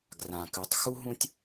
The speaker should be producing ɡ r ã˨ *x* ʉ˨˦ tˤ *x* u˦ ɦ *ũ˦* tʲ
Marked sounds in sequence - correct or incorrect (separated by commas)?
incorrect, correct, correct